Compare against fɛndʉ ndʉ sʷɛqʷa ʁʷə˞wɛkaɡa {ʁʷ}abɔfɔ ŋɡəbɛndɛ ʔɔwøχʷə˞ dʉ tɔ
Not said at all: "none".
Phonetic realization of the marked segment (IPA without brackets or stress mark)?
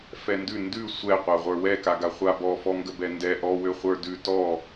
χʷ